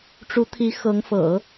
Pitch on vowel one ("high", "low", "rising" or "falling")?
rising